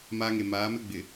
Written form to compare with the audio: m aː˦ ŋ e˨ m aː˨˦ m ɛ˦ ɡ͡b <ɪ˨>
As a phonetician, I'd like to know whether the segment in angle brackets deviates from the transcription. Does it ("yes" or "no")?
no